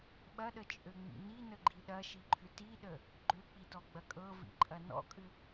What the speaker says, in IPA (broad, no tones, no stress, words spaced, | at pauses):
ɓɐɗət͡ʃʼøŋ͡mḭ ninəɡ͡ǃi ɗɐʃiǃʰʏ tiɗə | ɡ͡ǃøk͡pitɔɡ͡bɐ kʼɤvḭǃʼɐ nɔ̰kʼʏ